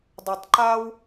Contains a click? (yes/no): yes